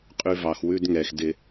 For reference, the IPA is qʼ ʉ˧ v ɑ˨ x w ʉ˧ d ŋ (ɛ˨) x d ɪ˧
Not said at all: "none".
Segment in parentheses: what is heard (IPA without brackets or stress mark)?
ɛ˨